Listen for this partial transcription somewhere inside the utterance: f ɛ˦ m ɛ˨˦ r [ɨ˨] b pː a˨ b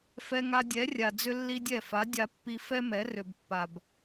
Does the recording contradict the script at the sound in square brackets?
yes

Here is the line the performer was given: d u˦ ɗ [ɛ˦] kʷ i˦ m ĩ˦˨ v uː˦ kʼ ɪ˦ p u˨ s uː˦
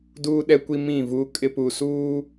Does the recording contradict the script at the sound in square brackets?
no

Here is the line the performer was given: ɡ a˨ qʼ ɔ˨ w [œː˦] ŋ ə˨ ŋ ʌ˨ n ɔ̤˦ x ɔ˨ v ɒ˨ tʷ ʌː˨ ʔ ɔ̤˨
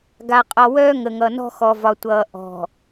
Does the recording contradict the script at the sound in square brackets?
no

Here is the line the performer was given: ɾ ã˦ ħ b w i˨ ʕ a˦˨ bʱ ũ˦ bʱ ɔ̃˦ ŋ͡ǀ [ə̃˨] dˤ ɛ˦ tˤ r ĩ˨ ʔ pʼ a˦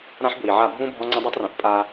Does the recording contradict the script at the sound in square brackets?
yes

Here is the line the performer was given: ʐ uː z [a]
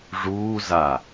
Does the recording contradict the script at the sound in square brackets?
no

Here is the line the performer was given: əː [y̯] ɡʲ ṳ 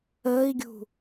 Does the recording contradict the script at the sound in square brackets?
yes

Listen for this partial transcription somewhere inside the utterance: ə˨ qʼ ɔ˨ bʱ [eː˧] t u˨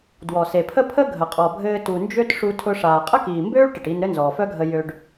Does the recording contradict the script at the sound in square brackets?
yes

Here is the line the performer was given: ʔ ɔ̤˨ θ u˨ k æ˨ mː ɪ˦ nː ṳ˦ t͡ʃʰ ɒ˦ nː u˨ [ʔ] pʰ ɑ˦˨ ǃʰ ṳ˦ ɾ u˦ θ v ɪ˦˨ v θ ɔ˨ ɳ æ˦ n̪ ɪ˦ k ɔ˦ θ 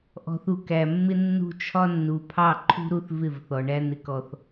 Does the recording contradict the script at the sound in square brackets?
yes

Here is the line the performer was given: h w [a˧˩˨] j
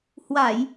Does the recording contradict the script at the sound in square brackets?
no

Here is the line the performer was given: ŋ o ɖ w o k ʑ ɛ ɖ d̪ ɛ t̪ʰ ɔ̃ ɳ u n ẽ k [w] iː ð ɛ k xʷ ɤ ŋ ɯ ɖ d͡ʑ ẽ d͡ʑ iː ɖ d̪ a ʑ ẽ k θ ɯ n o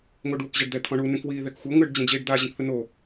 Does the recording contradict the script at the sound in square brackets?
no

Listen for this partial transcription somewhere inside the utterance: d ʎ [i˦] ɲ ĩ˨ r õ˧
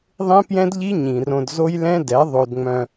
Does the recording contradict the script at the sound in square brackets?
no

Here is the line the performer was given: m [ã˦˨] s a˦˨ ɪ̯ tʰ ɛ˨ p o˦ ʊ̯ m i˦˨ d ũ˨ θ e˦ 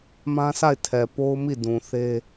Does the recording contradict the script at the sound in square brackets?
yes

